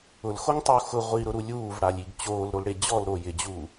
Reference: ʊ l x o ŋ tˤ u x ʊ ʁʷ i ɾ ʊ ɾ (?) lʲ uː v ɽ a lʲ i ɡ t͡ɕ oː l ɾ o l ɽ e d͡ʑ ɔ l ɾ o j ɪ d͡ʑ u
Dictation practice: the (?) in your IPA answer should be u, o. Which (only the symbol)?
u